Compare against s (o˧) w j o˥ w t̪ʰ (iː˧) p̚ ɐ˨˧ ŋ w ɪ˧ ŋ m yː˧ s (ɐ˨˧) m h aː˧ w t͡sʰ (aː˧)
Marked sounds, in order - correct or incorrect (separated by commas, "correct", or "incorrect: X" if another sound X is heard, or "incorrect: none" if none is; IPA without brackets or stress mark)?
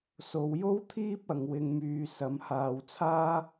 correct, incorrect: iː˥, correct, incorrect: aː˥